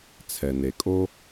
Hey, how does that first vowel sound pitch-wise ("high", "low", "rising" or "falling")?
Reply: low